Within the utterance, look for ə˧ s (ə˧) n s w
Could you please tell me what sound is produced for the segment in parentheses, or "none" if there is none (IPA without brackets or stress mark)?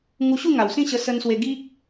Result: ə˧